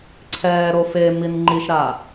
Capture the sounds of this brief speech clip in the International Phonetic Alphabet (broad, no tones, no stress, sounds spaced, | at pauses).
ǀʰ ɛː ɾ o f e m i n ŋ͡ǃ i ʃ ɾ aː